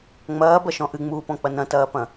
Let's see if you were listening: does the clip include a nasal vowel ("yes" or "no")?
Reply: yes